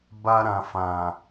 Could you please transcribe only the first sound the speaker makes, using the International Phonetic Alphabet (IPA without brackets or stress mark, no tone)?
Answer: b